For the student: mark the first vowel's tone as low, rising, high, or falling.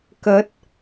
rising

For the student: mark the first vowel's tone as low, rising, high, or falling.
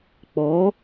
rising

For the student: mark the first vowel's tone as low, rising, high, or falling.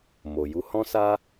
low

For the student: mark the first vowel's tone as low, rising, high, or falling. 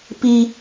high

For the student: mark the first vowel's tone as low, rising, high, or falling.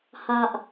low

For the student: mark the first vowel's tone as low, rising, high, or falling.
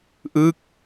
falling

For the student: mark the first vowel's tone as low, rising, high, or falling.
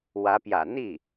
rising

